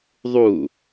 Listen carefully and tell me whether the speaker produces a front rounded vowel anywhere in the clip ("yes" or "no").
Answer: no